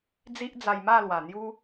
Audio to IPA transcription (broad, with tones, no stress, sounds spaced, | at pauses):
d͡z i˦ ʔ d͡z a˧ j m a˥˧ l w a˨˩ n̪ j u˦